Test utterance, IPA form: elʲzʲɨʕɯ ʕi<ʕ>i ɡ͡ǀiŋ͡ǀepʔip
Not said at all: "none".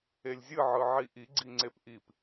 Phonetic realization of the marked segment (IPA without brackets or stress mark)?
ʔ